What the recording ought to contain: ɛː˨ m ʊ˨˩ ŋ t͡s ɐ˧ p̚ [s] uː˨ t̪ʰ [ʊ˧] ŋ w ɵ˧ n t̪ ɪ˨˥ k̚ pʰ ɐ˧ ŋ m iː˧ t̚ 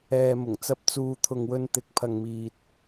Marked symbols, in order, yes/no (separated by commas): no, no